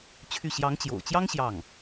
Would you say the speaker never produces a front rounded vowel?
no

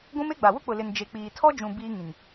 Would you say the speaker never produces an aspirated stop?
no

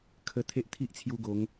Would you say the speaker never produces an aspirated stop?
no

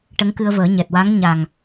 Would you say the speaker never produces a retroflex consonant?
no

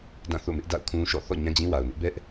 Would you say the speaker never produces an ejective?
yes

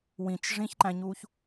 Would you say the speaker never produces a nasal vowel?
no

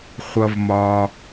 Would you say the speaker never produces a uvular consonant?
no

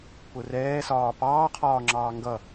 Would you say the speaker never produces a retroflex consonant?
yes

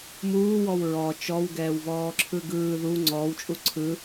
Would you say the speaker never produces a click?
no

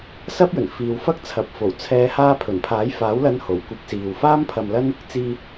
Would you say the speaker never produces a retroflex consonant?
yes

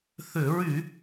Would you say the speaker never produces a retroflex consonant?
yes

